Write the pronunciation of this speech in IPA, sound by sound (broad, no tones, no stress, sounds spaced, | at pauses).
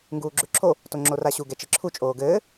ŋ ɡ uː ɡ͡ǁ ʉ ǁʰ o | t o ŋ͡ǁ o r a ɕ u ɡ ɛ t͡ʃ ɘ ǁʰ u t͡ʃʼ oː ɡ ɘː